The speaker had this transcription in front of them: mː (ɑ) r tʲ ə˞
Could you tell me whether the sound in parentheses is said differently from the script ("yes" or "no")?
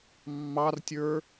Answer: no